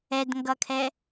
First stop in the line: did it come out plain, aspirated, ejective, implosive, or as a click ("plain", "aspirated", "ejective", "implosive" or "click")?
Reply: plain